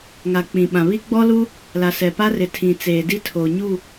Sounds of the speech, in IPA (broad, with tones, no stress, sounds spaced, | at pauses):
ŋ a˨ k͡p ĩ˨ ɓ ã˨ β i˦ ɡ͡b ɔ˦ l u˦ | l a˨ s ɛ˨ p a˦ r ɪ˨ tʰ ĩ˨ t͡s eː˨ d i˦ tʰ o˨ ɲ u˦˨